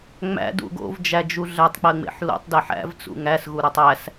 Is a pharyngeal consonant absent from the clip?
no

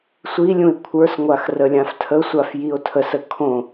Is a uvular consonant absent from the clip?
yes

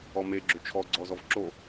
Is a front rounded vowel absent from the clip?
no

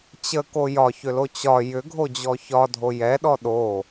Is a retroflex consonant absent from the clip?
yes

